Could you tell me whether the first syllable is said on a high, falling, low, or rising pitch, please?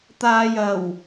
low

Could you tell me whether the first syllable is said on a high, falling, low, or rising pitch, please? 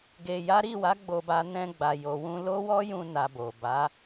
low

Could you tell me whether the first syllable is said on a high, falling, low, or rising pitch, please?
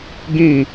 falling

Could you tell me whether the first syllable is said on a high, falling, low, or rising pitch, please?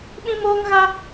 high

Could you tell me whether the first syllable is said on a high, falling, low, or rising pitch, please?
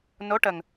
rising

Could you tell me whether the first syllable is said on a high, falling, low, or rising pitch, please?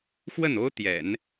falling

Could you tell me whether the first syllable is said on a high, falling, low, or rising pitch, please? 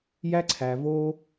high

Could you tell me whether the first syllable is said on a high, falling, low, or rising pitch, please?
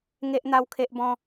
high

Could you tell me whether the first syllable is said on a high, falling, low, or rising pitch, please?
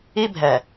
high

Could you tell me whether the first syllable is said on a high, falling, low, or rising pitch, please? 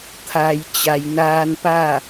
low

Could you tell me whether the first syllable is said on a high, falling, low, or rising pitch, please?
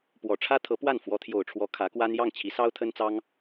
low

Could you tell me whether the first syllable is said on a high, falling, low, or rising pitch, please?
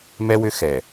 high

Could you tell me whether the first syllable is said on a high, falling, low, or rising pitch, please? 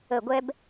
low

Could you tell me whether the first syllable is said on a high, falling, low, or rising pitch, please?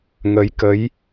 rising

